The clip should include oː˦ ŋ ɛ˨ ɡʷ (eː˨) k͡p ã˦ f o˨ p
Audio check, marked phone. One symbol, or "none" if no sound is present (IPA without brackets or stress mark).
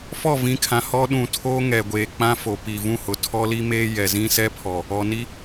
eː˨